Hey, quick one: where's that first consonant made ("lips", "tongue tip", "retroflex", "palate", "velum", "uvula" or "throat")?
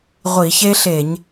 uvula